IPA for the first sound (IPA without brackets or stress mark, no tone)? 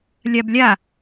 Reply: lʲ